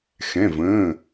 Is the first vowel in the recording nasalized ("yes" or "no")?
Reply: yes